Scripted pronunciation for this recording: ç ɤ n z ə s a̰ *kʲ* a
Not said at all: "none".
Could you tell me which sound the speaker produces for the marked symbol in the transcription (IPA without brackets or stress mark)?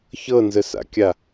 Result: kʲ